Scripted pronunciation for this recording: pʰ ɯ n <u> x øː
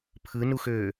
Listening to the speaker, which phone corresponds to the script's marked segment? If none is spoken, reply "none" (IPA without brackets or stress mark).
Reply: u